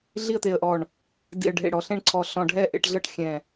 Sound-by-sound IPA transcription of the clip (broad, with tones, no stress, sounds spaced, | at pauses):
ɮ i˥˨ ə̯ t̪ e˧˩ ə̯ ʔ ɔ˧˩ ɳ | d ḭ˧˩ ə̯ ɖʱ ḛ˧˩ ɽ ɔ˧˩ ɬ ẽ˥˨ ɳ ǀʰ ɔ˧˩ ɬ ɔ̃˧˩ ɖʱ ɛ˥˨ ʔ ḛ˥˨ ʈ ɮ ɤ˥˨ ʈ xʲ ɛ̃˧˩